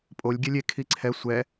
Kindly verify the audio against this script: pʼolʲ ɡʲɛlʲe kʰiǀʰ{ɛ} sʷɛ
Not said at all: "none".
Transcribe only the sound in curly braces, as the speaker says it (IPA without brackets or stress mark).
ɛ